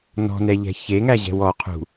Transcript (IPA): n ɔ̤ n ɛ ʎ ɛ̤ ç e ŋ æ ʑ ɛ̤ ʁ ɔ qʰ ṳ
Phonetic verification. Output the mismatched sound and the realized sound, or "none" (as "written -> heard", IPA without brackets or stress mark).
ʁ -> w